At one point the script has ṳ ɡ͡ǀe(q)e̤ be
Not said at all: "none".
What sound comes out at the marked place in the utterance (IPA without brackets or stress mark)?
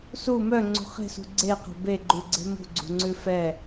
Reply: q